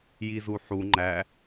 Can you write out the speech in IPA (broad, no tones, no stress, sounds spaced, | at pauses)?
j i z u ħ u ŋ͡ǃ æ